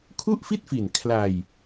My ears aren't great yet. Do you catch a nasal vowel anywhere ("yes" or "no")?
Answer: no